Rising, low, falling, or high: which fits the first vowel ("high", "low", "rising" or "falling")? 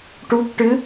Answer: rising